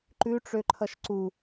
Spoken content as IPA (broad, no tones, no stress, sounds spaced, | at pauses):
ǃ ʉ ʈ͡ʂ ø ǃʰ ʌ ʃ ǀ u